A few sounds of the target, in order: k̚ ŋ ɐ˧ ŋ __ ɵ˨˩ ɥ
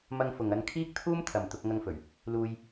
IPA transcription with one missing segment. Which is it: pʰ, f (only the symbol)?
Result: f